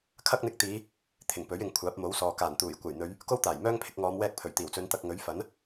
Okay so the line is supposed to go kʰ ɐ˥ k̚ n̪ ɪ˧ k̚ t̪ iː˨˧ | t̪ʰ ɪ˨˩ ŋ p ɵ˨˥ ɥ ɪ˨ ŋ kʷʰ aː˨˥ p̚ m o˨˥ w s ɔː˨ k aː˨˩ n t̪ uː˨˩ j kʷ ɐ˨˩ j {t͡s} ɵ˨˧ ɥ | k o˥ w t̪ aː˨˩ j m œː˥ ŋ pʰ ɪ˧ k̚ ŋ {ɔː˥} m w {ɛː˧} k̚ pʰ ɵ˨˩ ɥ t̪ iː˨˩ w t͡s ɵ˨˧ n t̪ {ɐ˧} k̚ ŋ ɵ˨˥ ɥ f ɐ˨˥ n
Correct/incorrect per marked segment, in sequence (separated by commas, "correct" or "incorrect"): incorrect, incorrect, correct, correct